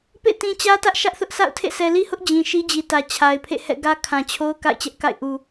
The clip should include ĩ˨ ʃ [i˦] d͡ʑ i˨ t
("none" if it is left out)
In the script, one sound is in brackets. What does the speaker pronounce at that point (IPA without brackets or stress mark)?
i˦